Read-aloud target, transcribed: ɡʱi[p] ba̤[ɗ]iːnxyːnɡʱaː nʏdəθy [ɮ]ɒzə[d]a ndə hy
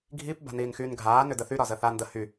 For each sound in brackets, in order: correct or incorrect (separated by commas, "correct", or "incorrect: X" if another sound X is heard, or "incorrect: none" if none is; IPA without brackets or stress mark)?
correct, incorrect: n, incorrect: ɾ, incorrect: θ